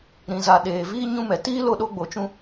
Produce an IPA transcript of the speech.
ɾ ĩ˨ z a˨ ɗ eː˨ v iː˦ ɲ ũ˧ m ɛ˨ t iː˦ l o˧ ɗ o˧ ɡ͡b o˨ t͡ʃ ũ˧

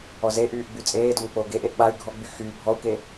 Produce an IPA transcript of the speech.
ɔ z e ʔ yː ʔ ɡ͡b y t͡sʼ eː d o m k͡p oː ɡ e ʔ e ʔ ɓ a y̯ ɡʱ ɔ ɡ͡b y x yː bʱ ɔ u̯ k e

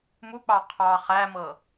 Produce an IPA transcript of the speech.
m u k͡p ɑ qʰ ɑ χ æ m ɤ

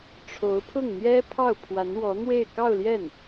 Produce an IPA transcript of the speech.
ʈ͡ʂʰ o˧˥ ʊ̯ pʰ ʊ˥˩ ŋ n̪ j ɛ˥ pʰ ɑ˥˩ ʊ̯ pʰ w a˧˥ n w ɔ˧˥ n̪ w e˥˧ ɪ̯ k ɑ˥˧ ʊ̯ l j ɛ˥˩ n

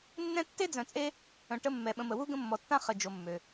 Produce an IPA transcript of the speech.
nː ɛ̃˦ tː e˥ d͡z œ̃˨ t͡sʼ e˦ | œ̃˨ ʈ ə˦ mː ɛ˩ ɓ ə̃˨ m ə˩ w u˥ ɡ ə̃˦ mː ɔ˨ tː ã˥ χ ə˨ d͡ʒ o˨ mː ø˩

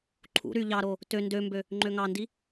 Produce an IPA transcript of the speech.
ǃʰ ṵ ɾ y ʎ ɑ ɾ o | t ø n d ø m b ø | ŋ͡ǃ ø ŋ ɑ n d i

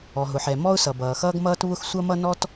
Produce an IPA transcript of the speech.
ɔ˩ ɦ ʊ˩ ħ ɛ˩ m ɔ˥ ʊ̯ s ʌ˩ b ʌː˩ x ʌː˥ ɡ m ʌː˥ t β ʊ˥ x sʷ ʌ˥ m ʌ˥ n ɔ˥ t

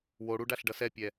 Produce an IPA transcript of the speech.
w o ɽ u ɖ a ɬ ɖ ʌ s ɛ pʲ ɛ

